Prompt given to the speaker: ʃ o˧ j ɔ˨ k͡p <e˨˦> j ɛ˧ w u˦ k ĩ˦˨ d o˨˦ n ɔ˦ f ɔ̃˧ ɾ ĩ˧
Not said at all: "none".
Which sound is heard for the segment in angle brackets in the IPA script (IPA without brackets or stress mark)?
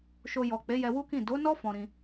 e˨˦